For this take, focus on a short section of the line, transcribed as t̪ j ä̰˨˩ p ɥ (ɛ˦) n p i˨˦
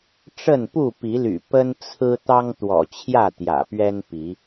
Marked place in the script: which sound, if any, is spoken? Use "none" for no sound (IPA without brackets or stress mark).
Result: ɛ˦